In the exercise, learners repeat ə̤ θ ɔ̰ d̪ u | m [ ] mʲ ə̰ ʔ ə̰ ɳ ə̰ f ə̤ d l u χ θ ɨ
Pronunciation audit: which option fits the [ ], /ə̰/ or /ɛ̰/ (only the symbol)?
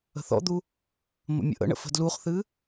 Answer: ə̰